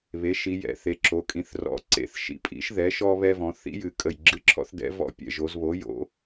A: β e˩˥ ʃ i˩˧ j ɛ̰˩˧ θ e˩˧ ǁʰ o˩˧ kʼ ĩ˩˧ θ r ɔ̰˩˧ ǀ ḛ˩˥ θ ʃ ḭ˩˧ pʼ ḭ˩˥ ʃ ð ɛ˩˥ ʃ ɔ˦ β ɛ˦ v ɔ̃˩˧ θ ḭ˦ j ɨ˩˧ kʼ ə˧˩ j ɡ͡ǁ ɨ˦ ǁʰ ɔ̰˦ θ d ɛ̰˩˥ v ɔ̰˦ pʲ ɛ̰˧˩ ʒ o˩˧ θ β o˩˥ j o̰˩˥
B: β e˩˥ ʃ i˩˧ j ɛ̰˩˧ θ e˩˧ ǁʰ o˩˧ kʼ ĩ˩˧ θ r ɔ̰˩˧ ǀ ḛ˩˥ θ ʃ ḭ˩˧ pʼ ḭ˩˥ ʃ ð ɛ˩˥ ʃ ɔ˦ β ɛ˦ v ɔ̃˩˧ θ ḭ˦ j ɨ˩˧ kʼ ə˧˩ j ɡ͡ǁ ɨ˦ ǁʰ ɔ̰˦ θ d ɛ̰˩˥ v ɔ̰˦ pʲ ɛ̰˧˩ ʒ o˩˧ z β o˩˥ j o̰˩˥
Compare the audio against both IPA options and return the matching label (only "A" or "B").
B